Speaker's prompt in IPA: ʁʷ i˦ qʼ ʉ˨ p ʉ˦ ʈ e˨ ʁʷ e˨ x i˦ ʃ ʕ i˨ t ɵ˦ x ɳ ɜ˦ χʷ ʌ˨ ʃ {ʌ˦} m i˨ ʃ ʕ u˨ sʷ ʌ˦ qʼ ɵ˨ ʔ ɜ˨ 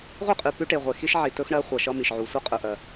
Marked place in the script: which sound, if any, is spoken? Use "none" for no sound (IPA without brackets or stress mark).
ʌ˦